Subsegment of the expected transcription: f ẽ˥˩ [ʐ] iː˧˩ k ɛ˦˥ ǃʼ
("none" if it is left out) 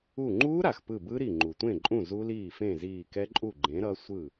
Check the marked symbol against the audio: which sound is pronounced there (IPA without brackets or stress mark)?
z